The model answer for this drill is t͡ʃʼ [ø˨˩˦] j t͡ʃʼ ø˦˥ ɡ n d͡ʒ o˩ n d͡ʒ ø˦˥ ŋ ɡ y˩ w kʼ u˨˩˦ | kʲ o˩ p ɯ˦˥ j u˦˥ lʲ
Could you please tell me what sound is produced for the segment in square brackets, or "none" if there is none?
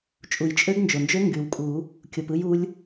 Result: u˨˩˦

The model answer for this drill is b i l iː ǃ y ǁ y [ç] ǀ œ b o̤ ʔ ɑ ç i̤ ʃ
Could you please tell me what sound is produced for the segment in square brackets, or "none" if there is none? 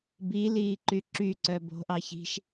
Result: none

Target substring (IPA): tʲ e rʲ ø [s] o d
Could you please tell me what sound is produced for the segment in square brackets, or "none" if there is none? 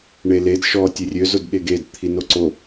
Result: z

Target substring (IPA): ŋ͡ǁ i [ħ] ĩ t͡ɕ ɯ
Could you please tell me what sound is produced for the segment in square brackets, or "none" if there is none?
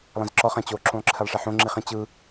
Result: χ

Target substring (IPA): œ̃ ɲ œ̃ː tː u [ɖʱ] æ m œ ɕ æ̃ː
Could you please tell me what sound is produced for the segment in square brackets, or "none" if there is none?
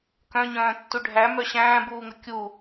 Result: ɖʱ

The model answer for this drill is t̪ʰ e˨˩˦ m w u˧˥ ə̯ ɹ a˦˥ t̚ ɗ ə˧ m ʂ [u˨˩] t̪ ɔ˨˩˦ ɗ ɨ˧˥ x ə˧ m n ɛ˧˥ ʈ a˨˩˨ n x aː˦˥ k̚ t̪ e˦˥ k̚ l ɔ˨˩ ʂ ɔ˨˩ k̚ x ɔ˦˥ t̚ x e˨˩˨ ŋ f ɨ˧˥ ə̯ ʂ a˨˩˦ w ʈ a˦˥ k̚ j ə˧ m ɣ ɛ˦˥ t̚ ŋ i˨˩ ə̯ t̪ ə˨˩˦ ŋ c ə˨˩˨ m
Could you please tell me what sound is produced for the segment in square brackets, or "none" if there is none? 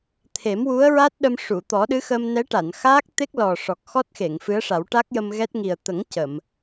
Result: u˨˩˨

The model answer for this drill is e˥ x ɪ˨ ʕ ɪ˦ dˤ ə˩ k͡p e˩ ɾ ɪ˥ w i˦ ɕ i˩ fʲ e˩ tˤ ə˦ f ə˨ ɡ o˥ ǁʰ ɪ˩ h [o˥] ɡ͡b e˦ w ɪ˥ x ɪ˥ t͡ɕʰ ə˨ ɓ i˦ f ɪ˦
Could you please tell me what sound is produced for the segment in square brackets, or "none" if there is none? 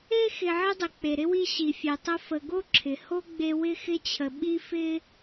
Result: o˥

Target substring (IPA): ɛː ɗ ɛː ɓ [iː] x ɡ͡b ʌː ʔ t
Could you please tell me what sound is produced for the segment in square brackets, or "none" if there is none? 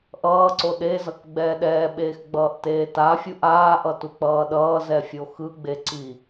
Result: eː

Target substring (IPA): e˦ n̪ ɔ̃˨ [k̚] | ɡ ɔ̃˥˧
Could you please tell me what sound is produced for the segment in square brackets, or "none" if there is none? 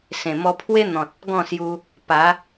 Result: t̚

